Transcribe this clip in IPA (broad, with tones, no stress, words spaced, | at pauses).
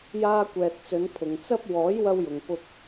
jaː˧kʷɛː˨t̚t͡sɵ˨˧n pʰʊ˨ŋt͡sɐ˥p̚ wɔː˨˥jwɐ˧wjʊ˨ŋ pʊ˧k̚